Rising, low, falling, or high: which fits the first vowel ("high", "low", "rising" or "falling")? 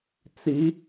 rising